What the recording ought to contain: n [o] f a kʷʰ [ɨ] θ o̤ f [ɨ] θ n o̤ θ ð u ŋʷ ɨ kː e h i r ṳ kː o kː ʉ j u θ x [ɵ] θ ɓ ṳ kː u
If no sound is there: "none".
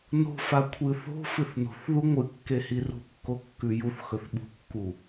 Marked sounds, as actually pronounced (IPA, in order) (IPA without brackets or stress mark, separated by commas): o̤, ɨ, ɨ, ɵ